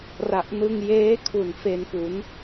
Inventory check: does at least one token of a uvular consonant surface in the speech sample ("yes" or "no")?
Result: no